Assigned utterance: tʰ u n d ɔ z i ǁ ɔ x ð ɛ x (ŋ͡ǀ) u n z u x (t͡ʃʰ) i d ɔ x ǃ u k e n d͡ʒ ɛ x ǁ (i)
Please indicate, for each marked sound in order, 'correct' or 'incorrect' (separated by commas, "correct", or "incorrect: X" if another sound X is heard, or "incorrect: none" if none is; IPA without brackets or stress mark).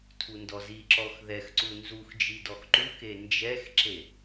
incorrect: ǀ, incorrect: d͡ʒ, incorrect: e